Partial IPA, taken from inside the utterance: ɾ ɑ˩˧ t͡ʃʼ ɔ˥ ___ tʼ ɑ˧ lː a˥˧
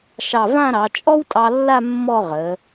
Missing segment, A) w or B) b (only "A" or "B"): A